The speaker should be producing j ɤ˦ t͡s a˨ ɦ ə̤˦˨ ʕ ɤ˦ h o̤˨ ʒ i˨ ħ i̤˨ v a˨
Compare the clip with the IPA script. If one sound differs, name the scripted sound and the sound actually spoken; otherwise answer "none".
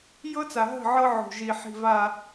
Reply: h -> ʕ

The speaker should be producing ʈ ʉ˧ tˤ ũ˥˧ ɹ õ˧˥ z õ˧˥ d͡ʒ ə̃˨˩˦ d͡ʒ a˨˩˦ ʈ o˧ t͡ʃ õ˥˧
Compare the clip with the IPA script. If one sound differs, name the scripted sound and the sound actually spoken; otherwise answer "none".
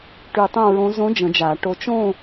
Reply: ũ˥˧ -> õ˥˧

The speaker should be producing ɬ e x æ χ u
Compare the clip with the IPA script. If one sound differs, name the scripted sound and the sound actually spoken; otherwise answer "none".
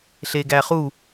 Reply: x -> ɡ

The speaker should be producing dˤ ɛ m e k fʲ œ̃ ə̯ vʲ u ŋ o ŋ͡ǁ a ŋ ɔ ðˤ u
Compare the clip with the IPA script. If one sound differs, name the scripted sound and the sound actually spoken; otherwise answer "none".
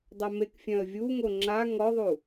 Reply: none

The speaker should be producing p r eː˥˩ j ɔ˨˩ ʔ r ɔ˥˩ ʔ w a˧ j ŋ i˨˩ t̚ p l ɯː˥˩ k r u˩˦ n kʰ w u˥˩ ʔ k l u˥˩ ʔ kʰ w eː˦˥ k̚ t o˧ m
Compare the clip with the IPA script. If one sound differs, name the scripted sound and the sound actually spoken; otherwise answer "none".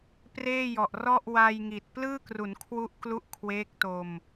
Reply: none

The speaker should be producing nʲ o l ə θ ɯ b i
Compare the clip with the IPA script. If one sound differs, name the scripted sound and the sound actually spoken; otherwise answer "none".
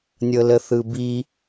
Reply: o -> ɤ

